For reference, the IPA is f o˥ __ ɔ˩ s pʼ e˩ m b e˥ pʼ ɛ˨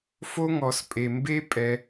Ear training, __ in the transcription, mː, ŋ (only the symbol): ŋ